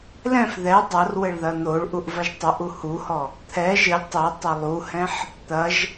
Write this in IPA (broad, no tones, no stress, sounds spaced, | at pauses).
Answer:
l ɛ̃ f ð ɛ dˤ ɐ r w ɘ ɭ ð ɐ n̪ o ɭ ʔ u ʔ v ɐ ʒ tˤ ɨ ʔ u h u h ɔ | t̪ʰ ɛ ʒ ɘ lʲ tˤ i tˤ ɘ lˠ u h ɛ̃ ħ | t̪ ɐ ʒ